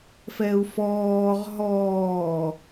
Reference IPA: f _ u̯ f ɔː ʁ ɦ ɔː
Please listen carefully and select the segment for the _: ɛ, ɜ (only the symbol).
ɛ